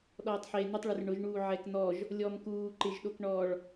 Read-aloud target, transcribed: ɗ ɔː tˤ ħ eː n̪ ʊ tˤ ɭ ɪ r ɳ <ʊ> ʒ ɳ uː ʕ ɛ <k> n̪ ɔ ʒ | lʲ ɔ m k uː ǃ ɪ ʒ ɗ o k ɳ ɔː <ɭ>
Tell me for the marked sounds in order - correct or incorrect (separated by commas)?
correct, correct, correct